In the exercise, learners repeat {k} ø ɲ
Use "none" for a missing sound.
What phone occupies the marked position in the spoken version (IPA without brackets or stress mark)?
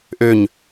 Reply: ʔ